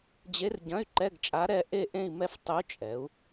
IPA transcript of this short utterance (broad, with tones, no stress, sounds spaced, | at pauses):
d͡ʑ e˧˥ r ɟ ɐ̃˧˥˧ y̯ ǃ ɛ˧˥˧ ɡ t͡ʃʼ a˧˥ ɾ ɛ˥˧ ʔ e˥˧ ʔ ẽ˥˧ i̯ m ɛ˥˧ f tˤ u˧˥ t͡ʃʼ ɛ˩˧ u̯